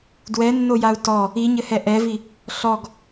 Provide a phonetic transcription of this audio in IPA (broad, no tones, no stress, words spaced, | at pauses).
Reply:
dwɛnːojau̯ tɔ | iɲɘhɛ ʔɛvi | ɬɔɡ